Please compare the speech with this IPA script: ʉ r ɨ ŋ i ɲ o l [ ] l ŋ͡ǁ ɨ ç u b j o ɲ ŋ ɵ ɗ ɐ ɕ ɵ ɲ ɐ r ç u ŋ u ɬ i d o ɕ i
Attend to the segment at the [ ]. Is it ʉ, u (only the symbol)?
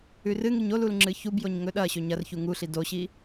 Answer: u